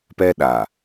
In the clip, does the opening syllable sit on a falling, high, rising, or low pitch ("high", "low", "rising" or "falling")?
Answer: high